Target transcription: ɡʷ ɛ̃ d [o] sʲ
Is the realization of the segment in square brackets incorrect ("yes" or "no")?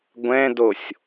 no